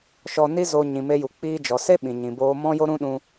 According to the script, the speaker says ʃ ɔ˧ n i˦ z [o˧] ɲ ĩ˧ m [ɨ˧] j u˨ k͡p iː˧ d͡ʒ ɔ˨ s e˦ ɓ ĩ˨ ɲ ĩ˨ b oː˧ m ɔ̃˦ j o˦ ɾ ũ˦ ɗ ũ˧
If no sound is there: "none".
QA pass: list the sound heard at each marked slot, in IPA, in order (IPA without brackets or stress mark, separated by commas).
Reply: o˧, e˧